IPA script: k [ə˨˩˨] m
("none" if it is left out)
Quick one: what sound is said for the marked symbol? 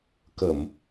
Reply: ə˨˩˨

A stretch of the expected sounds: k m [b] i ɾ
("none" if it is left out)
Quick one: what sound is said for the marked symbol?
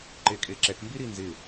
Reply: b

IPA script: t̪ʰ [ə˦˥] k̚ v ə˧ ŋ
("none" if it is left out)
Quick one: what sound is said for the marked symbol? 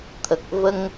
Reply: ə˨˩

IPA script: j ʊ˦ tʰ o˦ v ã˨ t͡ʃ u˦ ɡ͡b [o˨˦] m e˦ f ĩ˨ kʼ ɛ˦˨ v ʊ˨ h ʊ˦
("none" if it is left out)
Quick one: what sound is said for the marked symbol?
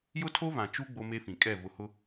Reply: o˦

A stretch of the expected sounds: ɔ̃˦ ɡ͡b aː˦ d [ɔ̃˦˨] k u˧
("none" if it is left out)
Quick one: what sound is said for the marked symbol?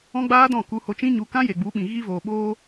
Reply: ɔ̃˦˨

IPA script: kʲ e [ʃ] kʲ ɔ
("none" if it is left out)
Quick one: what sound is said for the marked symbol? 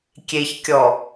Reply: ç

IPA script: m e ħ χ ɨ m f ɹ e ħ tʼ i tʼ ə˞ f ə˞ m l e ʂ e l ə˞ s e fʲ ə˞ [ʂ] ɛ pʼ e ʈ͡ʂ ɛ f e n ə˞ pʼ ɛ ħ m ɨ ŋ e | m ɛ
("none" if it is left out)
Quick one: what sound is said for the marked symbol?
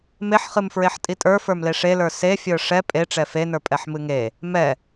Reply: ʂ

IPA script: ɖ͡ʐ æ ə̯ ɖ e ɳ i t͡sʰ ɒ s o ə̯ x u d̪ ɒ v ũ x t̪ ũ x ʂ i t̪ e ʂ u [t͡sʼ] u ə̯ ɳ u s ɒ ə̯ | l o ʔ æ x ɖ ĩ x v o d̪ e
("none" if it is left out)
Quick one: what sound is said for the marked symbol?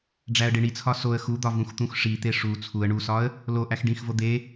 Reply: t͡sʰ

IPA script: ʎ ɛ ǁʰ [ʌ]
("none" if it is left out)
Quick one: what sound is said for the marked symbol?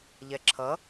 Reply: ʌ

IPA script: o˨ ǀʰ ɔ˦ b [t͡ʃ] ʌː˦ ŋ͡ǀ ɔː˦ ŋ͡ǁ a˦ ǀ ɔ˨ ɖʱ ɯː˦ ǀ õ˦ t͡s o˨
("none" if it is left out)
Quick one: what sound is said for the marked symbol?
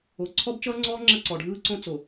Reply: t͡ʃ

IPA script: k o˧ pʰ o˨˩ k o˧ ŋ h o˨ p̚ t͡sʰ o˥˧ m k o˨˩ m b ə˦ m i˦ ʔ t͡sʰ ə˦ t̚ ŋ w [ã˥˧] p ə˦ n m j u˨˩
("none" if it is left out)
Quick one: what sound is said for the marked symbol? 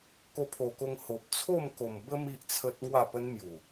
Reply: a˥˧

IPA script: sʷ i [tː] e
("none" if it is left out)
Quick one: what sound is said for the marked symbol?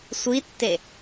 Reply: tː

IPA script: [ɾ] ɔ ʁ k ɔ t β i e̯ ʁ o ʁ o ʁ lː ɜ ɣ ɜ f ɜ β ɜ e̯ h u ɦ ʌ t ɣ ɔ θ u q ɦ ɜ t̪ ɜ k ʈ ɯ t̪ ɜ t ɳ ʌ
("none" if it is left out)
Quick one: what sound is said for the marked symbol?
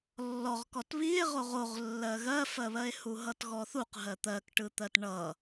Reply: lː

